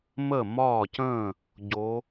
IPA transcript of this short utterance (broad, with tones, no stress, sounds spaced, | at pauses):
m ə˥˩ m ɒː˥˩ c ə̃ː˥˩ | ɟ o˨˦